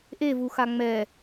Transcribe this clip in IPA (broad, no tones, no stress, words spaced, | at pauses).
ʔevu xaŋ͡mɛ